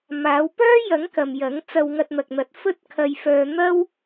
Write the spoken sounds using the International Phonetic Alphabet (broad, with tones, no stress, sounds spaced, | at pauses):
m aː˨˧ w p œː˥ j ɐ˨˥ ŋ k ɐ˨ m j ɐ˨˥ ŋ t͡s ɐ˧ w ŋ ɐ˧ t̚ n̪ ɐ˨ k̚ n̪ ɐ˨˥ t̚ f ɵ˥ t̚ kʰ ɐ˧ j f œː˧ n̪ ɐ˥ w